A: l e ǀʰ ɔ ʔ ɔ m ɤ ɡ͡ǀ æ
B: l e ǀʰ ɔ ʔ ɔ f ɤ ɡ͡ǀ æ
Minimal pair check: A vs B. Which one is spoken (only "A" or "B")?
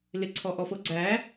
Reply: B